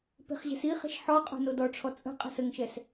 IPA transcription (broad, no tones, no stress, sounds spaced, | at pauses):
p e̤ χ ʑ ɛ̤ s i χ ɛ̤ ʃ ħ ɔ qʼ o̤ n o d ɔ ʈ͡ʂʰ ɔ t͡sʼ ə̤ qʼ ə̤ s ə ŋ ʃ ɛ s